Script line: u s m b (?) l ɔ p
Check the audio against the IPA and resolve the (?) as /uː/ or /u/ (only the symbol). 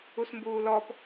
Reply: uː